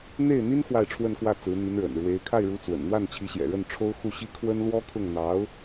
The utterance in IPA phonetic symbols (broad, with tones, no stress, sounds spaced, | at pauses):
n̪ e˥˩ ɪ̯ n̪ i˥ n x w a˥˧ ɪ̯ ʈ͡ʂʰ w ə˥˧ n k w ä˥˩ t͡s ɹ̩˧˥ n̪ i˧˥ n ɻ ə̰˨˩ n ɻ w e˧˥ ɪ̯ kʰ a˥˩ ɪ̯ ɻ u˧˥ t͡s w ə̰˨˩ n n̪ w a˥˩ n t͡ɕʰ i˧˥ ɕ j ɛ̰˨˩ ɻ ə˥˩ n ʈ͡ʂʰ o˥ ʊ̯ x u˥˩ ɕ i˥ kʰ w ə˥ n l w ɔ˥ kʰ ʊ˥˩ ŋ n̪ ɑ˧˥ ʊ̯